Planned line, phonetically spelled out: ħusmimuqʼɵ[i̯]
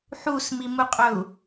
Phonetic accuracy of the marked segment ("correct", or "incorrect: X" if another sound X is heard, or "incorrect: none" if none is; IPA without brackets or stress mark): incorrect: u̯